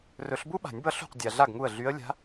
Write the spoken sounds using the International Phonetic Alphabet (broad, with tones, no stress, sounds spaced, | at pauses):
r ɵ˨˩˦ ɬ b u˥ ɓ a̤˨˩˦ nʲ b ʌ˧˥ ɬ ṳ˥˩ q dʲ a˨ ɮ a˥˩ ɡ ŋ u˥˩ ə̯ ɮ y˧˥ ə̯ lʲ a̤˧˥